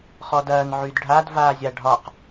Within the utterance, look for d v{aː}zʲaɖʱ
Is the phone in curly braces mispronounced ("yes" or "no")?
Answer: no